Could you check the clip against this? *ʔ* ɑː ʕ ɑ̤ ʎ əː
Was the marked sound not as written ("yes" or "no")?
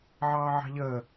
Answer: yes